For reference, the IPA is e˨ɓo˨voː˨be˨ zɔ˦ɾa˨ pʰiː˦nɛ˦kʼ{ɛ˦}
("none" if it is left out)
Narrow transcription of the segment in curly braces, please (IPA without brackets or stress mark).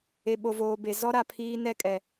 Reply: ɛ˨